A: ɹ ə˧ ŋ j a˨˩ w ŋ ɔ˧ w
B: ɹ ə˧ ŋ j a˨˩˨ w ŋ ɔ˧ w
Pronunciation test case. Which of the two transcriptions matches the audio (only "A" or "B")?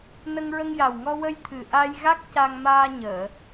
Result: A